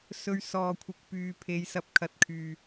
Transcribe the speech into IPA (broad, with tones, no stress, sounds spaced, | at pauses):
s ɵ˧ ɥ s ɔː˨ kʷʰ ɪ˨ k̚ p yː˨ pʰ e˨˧ j s ɐ˧ p̚ kʰ ɐ˨ t̚ kʰ yː˨